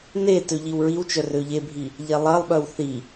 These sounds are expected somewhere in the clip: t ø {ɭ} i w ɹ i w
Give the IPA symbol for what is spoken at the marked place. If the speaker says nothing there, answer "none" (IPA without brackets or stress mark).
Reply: ʎ